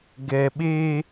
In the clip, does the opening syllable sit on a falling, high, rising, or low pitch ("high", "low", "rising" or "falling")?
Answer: low